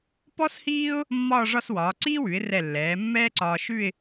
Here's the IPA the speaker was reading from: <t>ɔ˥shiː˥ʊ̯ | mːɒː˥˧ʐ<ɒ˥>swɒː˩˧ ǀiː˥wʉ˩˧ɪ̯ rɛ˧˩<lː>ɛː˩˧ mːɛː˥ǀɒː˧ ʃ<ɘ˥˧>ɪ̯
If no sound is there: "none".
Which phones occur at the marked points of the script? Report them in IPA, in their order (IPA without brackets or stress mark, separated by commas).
p, ɒ˥˧, lː, ʉ˥˧